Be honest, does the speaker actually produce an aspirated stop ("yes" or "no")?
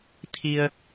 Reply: yes